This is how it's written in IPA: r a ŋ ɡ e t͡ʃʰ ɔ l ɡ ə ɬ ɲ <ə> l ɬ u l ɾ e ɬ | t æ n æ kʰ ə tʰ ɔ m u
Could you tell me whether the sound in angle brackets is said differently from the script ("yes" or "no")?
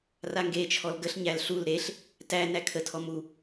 yes